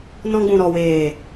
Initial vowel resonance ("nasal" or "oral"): nasal